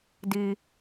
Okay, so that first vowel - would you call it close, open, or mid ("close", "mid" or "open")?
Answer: close